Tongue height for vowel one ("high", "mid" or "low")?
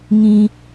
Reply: high